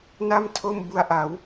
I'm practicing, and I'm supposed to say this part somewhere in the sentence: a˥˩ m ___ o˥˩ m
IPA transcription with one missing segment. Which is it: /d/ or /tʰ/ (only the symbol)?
tʰ